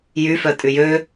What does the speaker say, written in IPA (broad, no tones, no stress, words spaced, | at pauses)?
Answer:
jyfœtʼy jø